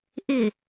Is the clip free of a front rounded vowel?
yes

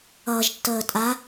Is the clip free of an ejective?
no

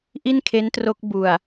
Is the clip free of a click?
yes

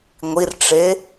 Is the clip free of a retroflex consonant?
no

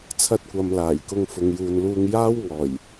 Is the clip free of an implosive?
yes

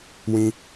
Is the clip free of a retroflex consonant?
yes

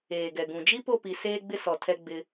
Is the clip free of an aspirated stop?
no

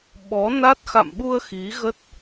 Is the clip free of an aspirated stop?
yes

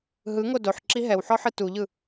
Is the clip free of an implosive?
yes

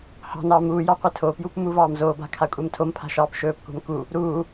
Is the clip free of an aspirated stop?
no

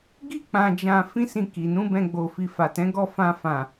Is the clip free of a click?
yes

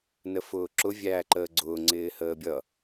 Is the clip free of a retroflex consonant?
yes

